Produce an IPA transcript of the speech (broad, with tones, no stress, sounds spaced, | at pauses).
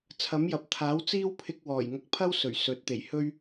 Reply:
t͡sʰ ɐ˨˥ m j ɐ˨ p̚ t̪ʰ aː˨˥ w t͡s iː˥ w pʰ ɪ˧ k̚ w ɔː˨˩ j ŋ ɐ˨ k̚ pʰ ɐ˥ w s ɵ˨˩ ɥ s ɵ˨˥ t̚ t̪ e˨˩ j h ɵ˥ ɥ